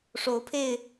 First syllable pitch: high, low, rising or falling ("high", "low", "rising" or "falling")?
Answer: rising